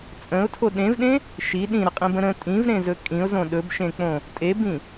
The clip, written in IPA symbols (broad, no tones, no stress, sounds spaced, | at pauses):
t͡sʼ ə̃ ʊ̯ tʰ o ɗ ẽ v ɗ ẽ | ʃ i ɗ ĩ ɾ ə qʼ ĩ b ə̃ ɾ ə̃ tʼ ĩ v ɾ ẽ z ɵ kʼ ĩ ʊ̯ z õ ɗ ɵ b ʃ ẽ k͡p õ | tʼ e b ĩ